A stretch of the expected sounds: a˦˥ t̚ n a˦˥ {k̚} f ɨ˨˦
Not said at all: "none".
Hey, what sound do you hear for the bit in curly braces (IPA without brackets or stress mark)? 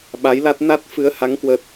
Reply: t̚